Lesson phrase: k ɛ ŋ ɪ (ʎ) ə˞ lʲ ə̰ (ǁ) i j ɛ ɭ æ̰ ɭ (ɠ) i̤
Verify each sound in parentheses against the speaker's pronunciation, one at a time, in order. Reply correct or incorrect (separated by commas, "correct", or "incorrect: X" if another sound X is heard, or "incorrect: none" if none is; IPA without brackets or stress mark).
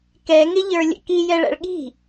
correct, incorrect: k, correct